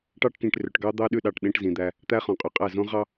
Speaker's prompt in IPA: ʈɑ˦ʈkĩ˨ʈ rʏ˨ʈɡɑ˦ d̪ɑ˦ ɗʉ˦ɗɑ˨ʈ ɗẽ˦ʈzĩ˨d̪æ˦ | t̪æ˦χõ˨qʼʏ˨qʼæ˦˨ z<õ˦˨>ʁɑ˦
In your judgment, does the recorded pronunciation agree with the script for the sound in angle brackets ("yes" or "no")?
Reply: no